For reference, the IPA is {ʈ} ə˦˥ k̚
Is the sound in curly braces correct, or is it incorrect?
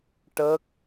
correct